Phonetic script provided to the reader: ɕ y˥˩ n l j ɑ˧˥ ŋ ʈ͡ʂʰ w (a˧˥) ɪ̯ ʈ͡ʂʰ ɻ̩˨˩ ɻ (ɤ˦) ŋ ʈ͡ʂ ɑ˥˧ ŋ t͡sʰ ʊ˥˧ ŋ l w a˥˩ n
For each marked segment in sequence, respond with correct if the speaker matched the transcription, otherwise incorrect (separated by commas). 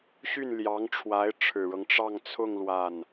correct, correct